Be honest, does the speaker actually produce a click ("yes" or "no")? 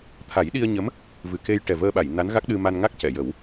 no